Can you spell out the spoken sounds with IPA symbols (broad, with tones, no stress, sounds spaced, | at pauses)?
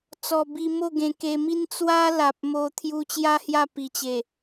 t͡s ɔ˨˩ b i˧ m o˥˧ ɡ ẽ˧ k e˧ m i˦ n t͡s w a˦ l a˨ p̚ m o˧ t̪ʰ j u˧ t͡ɕ j a˦ h j a˥˧ p i˨˩ t͡ɕ e˨˩